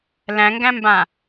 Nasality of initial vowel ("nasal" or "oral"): nasal